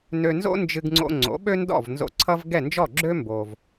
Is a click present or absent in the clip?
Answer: present